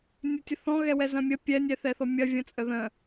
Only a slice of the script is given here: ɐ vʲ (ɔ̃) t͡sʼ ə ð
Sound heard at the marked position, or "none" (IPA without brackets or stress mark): ə̃